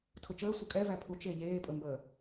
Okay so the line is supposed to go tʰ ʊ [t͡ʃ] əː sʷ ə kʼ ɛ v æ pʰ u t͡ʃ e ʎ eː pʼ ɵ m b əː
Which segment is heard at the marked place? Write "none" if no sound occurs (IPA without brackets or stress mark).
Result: t͡ʃ